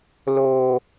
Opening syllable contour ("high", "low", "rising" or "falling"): low